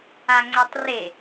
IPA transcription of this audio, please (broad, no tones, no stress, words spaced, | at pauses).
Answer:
aŋ͡ǀɛtˤre